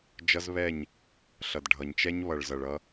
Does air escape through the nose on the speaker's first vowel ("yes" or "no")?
no